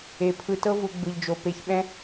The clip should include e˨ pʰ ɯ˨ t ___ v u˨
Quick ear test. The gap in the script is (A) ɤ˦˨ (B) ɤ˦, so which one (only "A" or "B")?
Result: B